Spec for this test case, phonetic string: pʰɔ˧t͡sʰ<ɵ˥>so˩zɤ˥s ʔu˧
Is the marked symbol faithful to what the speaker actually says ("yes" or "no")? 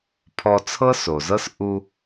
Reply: no